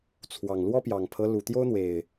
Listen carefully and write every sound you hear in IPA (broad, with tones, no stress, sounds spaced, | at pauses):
t͡sʰ w ɑ˨˩ ŋ l w ɔ˦ p j ɑ˨˩ ŋ pʰ ɤ˦ l u˨˩ t̪ j o˦ ʊ̯ n̪ w e˨˩ ɪ̯